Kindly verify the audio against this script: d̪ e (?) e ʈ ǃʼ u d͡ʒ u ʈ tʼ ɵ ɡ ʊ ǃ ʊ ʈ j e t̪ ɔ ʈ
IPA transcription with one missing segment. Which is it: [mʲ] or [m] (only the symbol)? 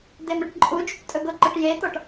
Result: m